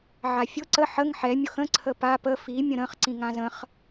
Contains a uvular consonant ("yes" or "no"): yes